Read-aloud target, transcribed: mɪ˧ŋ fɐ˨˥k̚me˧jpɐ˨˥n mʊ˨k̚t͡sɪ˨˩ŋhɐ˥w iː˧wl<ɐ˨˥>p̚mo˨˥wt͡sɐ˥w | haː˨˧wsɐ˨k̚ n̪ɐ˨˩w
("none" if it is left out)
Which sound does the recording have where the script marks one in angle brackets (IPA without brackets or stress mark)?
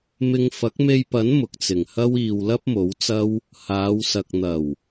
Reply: ɐ˥